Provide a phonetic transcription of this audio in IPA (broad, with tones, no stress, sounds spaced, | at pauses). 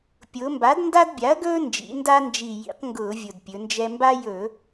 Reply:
pʲ ʊː˩˧ m b a˩˥ d n d a˦ d bʲ a˩˥ ɐ̯ ɡ ɵː˦ n d͡ʒ ḭ˩˧ n d a˦ n d͡ʒ i˨˩ j ḭ˩˧ q ŋ ɡ ʊː˧˩˧ vʲ ʊ˨˩ d pʲ ɵ˩˧ n d͡ʒ ɛ˦ m b a˦ j ɵ˧˩˧